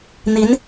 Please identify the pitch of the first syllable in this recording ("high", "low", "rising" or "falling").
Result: rising